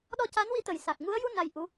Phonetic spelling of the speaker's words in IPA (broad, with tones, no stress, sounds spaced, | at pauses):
ɗ ɔ˧ c a˧˥ n w i˧˥ t̪ ə˨˩ j s a˨˩ k̚ ŋ u˧˥ ə̯ j u˧ n a˧ j ʔ u˧˥